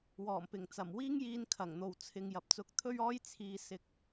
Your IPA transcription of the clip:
wɔː˨˩mpɪ˨˩ŋt͡sɐ˨˩m wiː˥ŋjiː˧nkʰɐ˨˩ŋn̪o˨w t͡sʰɪ˨ŋ jɐ˨p̚t͡sʊ˧k̚ t̪ʰɵ˥ɥɔː˥j t͡sʰiː˨ sɪ˧k̚

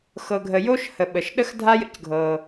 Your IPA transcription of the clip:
xɤ˩ɡʱə˩ jo˥ʃhə˩ ɓə˩ʃ ɗə˥xdʱa˥ jə̰˥cɡʱɤ˩

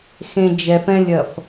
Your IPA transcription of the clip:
xẽ d͡ʒɛf ɛ̃lʲɐf

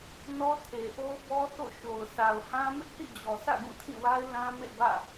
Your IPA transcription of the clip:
nɔ˦tʰe˨ʔo˦ʊ̯bɔ˦ θo̰˦˨ʃo˨ʊ̯ sa˨ʊ̯hã˦ mɪ˦ʔθḭ˦˨d͡ʑɔ˨sä̰˦˨ ɡũ˦˨tʰĩ˦˨wa˦ɪ̯ lã˦mḛ˦˨bä̰˦˨

